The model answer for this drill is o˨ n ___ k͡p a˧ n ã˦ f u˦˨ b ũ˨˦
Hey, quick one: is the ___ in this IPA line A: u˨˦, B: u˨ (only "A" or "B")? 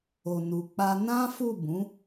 B